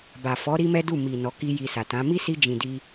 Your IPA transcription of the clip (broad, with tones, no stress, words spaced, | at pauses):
ba˨fɔ˨˦ ɾi˦mɛ˦du˦˨ mi˨ nɔ˨˦ki˦ji˧sa˨ tã˨˦ mi˦si˧ d͡ʒĩ˨di˧